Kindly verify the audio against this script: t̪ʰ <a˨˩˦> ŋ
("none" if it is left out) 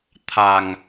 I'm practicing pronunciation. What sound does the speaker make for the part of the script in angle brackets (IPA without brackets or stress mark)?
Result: a˨˩